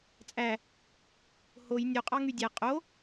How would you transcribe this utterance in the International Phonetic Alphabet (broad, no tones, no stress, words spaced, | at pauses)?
t͡sʼæ | hoj nʲoqʼɑ ŋydʲæ qʼo